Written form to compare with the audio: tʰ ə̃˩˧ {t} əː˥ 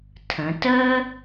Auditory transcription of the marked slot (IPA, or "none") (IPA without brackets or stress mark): t